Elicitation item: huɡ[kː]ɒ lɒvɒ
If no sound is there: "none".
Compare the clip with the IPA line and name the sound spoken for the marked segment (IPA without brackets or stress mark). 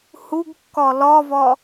kː